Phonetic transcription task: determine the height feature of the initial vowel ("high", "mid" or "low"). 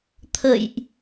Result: mid